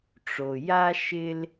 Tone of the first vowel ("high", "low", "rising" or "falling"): low